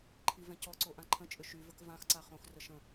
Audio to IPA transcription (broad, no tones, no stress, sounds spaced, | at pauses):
ǃʰ i v ɛ̃ c ɔ ǀ o ʔ ã ǃʰ ə̃ t͡ʃʼ ʏ ʃ y v ə k v ã x ǀ a χ õ x r ə ʃ ə̃